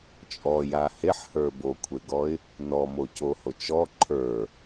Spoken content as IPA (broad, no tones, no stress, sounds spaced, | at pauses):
t͡ʃʼ ɔ j a h e ħ h ə˞ b o kʷʰ e ɡ ɔ ɪ̯ | n ɔ m o c o h o t͡ʃ ɔ ǃʰ ə˞